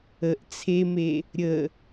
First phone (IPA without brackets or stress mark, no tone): ə